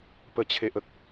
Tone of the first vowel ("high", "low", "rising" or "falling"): low